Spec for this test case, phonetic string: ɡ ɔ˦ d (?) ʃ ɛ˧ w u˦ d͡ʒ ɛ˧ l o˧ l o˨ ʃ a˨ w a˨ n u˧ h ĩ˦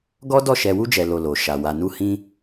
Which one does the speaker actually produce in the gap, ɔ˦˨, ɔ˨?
ɔ˦˨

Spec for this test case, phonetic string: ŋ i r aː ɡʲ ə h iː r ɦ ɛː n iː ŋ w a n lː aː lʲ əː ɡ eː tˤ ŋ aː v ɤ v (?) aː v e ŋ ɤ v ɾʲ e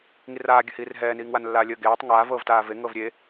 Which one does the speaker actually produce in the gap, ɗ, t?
t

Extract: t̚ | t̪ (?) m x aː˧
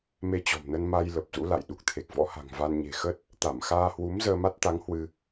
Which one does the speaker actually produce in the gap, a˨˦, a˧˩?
a˧˩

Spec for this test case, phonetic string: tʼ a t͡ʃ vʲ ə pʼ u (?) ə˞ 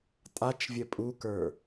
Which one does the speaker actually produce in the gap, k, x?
k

